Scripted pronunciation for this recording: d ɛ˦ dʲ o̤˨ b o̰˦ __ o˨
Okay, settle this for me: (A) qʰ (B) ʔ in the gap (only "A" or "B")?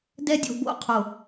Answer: A